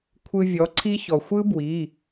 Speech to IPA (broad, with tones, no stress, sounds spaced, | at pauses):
kʷʰ ɯ˧ vʲ ɔ˩˥ ǀʰ i˦˥ ç ɔ˩ xʷ ɯ˦˥ b w i˩˧˩